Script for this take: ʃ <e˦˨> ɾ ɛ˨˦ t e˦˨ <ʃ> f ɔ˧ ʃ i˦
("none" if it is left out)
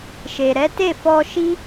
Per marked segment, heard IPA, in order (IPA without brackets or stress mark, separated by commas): e˨, none